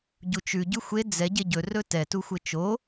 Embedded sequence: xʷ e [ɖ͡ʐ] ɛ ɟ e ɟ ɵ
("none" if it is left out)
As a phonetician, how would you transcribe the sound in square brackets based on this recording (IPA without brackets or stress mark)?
d͡z